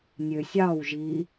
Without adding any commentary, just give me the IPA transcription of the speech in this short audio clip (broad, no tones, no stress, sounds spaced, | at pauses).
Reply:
nʲ ø sʲ ɑ w ʒ i